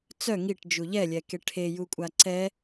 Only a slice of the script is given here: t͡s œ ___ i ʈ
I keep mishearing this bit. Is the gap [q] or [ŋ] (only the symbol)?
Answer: ŋ